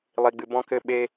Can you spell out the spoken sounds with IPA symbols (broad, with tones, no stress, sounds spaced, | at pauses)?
lˠ i˨ ɡ͡b ɨ˨ b ɔ̃˦ k ɘ˦ ɓ e˦